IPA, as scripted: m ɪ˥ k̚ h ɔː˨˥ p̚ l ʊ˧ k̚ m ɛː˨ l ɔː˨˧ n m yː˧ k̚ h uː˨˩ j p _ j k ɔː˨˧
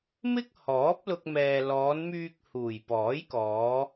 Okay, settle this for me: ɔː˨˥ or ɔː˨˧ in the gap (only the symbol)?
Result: ɔː˨˥